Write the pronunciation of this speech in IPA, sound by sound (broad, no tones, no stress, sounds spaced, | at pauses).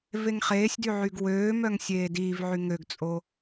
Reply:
v e ŋ χ eː sʲ d y ʕ y ɡ w øː m œ ŋ sʲ eː d iː v ʕ y ŋ ø ɡ t͡sʼ o